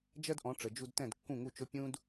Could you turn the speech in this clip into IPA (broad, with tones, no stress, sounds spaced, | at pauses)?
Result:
d͡ʒ ɜ˥ d ʔ ɔ̃˩˥ ʈ͡ʂ ə˩ d͡ʒ u˧ d t ɛ̃˥˩ d kː ũ˥˩ ŋ u˥˩ t͡ʃ ʊ˥ pʲ ũ˥ d